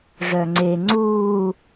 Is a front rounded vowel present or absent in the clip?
present